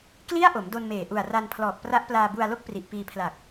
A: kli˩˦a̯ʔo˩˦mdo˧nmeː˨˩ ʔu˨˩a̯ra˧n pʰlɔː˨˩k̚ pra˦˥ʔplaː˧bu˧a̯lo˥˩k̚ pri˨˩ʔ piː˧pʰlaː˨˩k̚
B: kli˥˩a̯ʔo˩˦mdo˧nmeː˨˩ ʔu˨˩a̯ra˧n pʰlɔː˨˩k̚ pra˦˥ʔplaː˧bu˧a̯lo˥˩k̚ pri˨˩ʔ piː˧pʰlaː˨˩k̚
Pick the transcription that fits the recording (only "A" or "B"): B